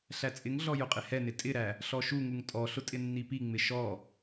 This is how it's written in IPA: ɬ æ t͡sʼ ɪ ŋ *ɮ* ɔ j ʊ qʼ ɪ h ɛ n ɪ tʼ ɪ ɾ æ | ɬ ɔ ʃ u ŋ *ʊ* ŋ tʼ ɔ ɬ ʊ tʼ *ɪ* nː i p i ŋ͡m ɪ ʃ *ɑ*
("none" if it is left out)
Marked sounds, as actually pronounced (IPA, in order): ɮ, u, ɪ, ɔ

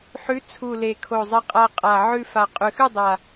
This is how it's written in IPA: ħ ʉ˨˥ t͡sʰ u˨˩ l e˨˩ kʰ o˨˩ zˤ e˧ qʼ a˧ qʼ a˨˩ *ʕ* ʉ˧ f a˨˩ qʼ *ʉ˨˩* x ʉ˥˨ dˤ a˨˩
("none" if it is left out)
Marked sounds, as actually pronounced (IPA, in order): ʕ, ʉ˨˩

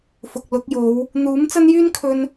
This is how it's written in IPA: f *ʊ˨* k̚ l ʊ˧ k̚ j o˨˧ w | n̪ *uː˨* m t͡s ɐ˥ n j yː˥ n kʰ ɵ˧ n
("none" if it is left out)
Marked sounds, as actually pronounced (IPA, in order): ʊ˨, uː˨˥

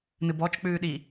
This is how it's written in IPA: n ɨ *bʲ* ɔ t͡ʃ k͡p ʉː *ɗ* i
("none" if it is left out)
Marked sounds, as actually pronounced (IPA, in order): b, ɗ

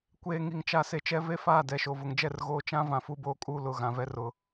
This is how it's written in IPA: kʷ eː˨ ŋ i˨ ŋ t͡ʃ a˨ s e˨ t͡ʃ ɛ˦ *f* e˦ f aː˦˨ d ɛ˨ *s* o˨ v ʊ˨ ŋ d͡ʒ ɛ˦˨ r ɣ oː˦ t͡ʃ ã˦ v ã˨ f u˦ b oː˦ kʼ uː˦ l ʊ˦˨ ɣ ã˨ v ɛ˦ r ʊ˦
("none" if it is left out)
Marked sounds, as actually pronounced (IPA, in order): v, ʃ

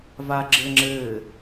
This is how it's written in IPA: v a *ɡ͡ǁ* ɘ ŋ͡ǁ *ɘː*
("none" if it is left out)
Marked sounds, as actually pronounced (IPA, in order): ɡ͡ǁ, ɘː

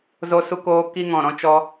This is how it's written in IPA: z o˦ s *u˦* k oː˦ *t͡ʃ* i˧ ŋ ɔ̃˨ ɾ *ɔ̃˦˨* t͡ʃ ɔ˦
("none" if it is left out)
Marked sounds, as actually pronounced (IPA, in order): u˦, k, ɔ̃˧

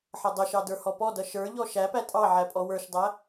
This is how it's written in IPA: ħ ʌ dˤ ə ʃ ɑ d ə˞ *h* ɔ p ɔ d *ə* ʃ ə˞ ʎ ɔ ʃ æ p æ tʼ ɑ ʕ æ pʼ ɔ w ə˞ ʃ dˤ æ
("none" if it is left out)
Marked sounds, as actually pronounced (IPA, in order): h, ʌ

